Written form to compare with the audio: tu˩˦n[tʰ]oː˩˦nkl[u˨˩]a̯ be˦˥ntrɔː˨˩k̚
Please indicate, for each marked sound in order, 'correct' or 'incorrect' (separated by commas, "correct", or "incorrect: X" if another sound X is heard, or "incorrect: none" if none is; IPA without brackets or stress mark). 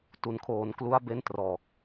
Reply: incorrect: kʰ, incorrect: u˦˥